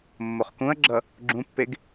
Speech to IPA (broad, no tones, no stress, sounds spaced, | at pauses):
mː o χ k ũ ɐ̯ ɡ͡ǁ ʌ | ɡ͡ǁ ũ pː e ɡ